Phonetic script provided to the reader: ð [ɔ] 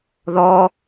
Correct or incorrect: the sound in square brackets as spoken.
correct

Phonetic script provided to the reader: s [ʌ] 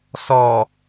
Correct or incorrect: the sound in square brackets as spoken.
incorrect: ɔ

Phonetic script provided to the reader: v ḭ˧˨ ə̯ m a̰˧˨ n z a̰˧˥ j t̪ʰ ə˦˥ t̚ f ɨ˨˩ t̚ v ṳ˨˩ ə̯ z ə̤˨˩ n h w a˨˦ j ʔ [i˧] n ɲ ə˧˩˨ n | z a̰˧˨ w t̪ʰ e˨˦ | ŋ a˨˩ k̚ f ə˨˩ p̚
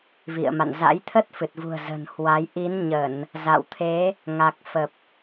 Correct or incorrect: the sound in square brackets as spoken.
incorrect: i˨˦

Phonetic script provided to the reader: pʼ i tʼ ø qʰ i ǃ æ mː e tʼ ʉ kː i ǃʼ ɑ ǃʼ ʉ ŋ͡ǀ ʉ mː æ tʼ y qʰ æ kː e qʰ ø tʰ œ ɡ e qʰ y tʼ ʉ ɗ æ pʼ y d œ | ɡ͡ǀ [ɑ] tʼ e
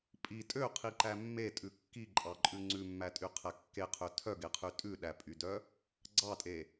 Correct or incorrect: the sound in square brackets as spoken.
correct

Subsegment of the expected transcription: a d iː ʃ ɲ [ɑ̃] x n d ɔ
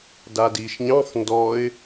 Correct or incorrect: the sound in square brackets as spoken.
correct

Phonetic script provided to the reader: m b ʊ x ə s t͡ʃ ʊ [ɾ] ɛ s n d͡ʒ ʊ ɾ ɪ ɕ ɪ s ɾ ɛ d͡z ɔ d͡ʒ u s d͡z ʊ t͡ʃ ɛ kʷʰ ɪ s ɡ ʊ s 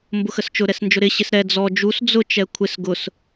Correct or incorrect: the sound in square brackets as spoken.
correct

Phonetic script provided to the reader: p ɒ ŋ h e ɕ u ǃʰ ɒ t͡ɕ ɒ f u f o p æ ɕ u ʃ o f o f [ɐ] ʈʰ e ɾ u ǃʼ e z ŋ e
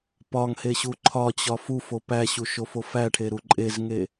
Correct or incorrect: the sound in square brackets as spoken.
incorrect: æ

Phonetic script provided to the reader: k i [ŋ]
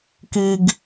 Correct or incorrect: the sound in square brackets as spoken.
incorrect: ɡ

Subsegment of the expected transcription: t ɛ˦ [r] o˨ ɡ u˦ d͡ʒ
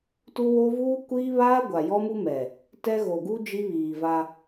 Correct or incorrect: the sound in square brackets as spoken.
incorrect: ɣ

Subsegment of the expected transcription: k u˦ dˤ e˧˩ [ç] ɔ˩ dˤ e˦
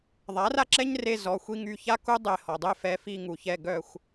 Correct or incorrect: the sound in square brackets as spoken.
incorrect: h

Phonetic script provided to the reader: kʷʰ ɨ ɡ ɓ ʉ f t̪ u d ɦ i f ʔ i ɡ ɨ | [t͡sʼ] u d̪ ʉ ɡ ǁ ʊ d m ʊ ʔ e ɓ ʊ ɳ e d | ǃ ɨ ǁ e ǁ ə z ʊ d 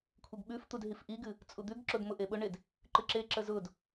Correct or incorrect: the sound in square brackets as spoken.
correct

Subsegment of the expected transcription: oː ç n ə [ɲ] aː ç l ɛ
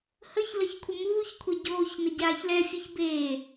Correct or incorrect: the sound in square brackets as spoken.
incorrect: ɟ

